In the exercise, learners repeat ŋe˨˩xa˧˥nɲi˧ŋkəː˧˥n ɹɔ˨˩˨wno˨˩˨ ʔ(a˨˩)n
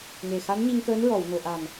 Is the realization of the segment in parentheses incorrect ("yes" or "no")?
no